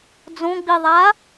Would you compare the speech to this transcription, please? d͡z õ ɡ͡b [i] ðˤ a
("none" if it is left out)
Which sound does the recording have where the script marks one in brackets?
i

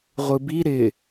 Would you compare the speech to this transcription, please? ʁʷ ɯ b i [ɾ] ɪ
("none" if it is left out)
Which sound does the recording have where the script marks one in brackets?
ɾ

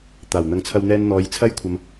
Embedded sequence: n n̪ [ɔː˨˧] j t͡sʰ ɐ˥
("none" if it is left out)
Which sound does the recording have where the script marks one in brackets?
ɔː˨˧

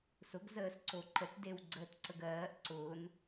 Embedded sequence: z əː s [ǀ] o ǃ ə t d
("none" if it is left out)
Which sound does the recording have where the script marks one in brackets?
ǀ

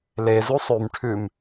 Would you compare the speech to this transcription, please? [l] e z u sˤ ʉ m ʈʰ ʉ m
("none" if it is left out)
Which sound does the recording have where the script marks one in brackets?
l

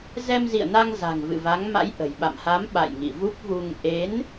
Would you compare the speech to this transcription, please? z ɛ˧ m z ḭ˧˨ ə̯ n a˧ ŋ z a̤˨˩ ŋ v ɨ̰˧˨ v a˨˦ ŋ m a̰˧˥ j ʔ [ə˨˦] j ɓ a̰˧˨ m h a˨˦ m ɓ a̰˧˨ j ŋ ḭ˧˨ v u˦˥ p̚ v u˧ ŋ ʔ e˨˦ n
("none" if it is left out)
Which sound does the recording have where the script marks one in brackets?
ə̤˨˩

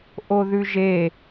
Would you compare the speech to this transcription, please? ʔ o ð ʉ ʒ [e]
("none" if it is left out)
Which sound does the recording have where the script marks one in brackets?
e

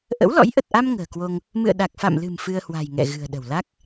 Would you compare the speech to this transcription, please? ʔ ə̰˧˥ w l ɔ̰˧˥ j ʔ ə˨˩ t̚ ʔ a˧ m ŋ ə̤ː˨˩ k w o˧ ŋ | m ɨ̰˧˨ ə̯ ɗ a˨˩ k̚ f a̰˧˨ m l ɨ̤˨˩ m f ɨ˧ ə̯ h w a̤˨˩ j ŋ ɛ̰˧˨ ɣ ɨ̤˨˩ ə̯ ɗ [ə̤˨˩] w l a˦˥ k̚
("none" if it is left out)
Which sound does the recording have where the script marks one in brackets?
ə̤˨˩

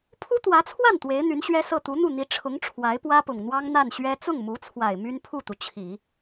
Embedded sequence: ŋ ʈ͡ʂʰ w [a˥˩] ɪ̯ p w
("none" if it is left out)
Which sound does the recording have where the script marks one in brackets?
a˧˥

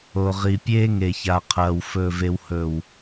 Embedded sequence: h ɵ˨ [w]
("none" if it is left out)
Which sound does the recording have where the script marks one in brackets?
w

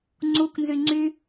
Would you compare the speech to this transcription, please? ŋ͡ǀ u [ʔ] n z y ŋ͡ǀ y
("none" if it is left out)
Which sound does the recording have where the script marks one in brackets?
k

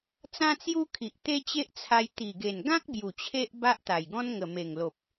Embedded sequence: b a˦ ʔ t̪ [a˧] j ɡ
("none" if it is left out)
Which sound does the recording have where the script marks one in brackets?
a˨˩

